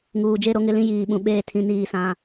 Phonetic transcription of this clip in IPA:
ŋ uː˨ d͡ʒ e˦ ɾ o˦ ŋ ɪ˦ l ĩ˦ j iː˨ ɓ ũ˨ ɓ eː˦˨ tʰ ĩ˦ n iː˦ s ã˦

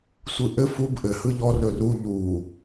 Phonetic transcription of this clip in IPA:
sʷ ɯ ʔ ɘ f u b ʔ ɘ h ɯ ʎ ɔ r ɵ r u ʎ u

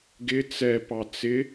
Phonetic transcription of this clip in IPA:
ɡ ɪ t͡s ɛ p ɑ t͡s ɪ

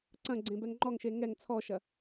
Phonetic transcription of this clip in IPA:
ǀ ɐ̃ ɡ͡ǀ ẽ b ɛ ŋ ŋ͡ǃ ɔ ŋ ʃ e ŋ ɛ ŋ t͡sʰ ɔ ʃ ɐ

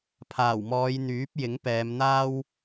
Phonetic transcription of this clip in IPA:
pʰ aː˨˩ w m ɔː˨˧ j n̪ yː˨˥ p̚ j ɪ˨˥ ŋ p ɛː˨˧ m n̪ aː˥ w

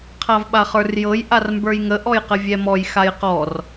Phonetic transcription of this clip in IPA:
qʰ a v ɓ a χ ə˞ r j ɤ j ʔ a r m b ə˞ j ŋ ə ʔ ɔ j q ə vʲ ɛ m ɔ j x a j q ɔ r

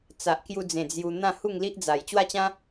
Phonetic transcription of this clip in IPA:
t͡s a˨ ʔ k j u˧ d͡z ẽ˨˩ d͡z j u˧ n̪ ã˥˧ h u˥˧ ŋ l i˦ ʔ d͡z a˨˩ j t͡ɕ w a˥˧ t͡ɕ ã˦

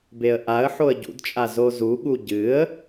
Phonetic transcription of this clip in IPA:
b e ə̯ ʔ a ə̯ ħ o ə̯ ɟ ṵ d t͡ʃʼ a z o z u ɠ u ɟ ɨ ə̯

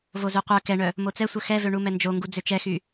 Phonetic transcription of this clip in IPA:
v o z ø qʷ œ k ɛ ɳ œ | m o t͡s ɛ sʷ œ x ɛ v ø ɳ u m ɛ n d͡ʒ o ŋ ɡ u d͡z ø t͡ʃ ɛ x y

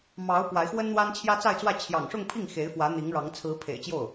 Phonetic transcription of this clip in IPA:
m ɑ˧˥ ʊ̯ p w a˧˥ ɪ̯ x w ə˥ n n̪ w a˥ n t͡ɕʰ j ä˥ t͡s a˥˧ ɪ̯ t͡s w ä˥˩ t͡ɕʰ j ɑ̰˨˩ ŋ ʂ ʊ˥˧ ŋ pʰ i˥˩ ŋ x e˧˥ ɪ̯ f w ä˧˥ n̪ i˧˥ ŋ ɻ ɑ˧˥ ŋ t͡sʰ ɹ̩˧˥ pʰ ḛ˨˩ ɪ̯ t͡ɕ j o˥˩ ʊ̯

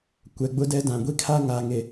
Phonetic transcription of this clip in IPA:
kʷ ɛ˨ ɡ͡b ʊ˦ d ɛ˦ d ã˨ ɡʷ i˦ kʰ a˦ ŋ aː˨ ŋ e˨

